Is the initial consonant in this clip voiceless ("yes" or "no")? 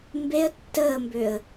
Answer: no